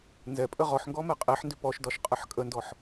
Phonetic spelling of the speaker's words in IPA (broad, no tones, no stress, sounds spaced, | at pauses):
n z ɛ pʼ ə ʁ ɔ ħ ŋ ɡ ɔ m ɛ qʼ e ħ n d ʏ p ɔ ʃ d ɒ ʃ qʼ ə ħ kʼ ə n d ɔ ħ